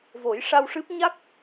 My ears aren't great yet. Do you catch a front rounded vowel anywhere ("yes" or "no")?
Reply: no